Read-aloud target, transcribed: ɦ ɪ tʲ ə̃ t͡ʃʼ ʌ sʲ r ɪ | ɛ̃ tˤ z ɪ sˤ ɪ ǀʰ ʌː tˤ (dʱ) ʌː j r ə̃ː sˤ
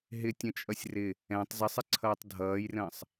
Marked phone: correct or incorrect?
correct